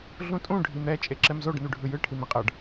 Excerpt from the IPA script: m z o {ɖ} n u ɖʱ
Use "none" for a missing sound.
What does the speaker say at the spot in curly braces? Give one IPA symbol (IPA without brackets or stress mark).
ɖ